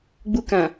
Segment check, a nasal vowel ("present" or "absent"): present